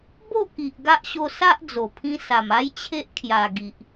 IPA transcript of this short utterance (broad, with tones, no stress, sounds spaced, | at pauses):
b o˥˧ k i˨ ʔ ɡ a˦ ʔ ɕ o˧ s a˦ ʔ d͡z o˨˩ pʰ ĩ˧ s a˨˩ m a˦ j t͡ɕʰ e˦ ʔ kʰ j a˨˩ ɡ i˨ ʔ